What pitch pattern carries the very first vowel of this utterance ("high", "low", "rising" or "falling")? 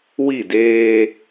falling